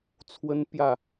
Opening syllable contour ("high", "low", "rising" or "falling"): high